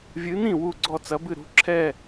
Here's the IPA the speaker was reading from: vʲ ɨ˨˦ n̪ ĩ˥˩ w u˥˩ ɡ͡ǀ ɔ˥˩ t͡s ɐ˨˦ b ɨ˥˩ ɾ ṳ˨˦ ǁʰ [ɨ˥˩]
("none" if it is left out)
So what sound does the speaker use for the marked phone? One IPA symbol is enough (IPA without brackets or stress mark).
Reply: ɛ˥˩